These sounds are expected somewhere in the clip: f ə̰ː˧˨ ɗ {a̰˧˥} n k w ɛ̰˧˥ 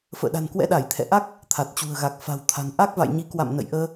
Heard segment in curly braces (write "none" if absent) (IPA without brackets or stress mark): a̤˨˩